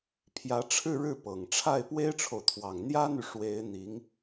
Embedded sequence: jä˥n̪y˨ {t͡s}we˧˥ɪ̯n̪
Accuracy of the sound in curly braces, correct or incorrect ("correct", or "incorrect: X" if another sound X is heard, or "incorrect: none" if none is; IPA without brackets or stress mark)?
incorrect: ʂ